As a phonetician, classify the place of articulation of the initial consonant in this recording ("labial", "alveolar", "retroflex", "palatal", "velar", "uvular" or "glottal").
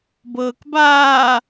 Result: labial